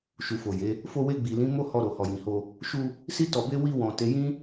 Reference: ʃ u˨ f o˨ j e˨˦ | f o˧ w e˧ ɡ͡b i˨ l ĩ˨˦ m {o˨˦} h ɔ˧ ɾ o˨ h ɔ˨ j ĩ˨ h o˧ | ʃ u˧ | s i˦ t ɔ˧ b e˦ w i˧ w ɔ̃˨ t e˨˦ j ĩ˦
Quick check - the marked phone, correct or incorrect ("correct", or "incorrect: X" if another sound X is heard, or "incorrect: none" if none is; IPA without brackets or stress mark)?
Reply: incorrect: o˦